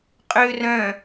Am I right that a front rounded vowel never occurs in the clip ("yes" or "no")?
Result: no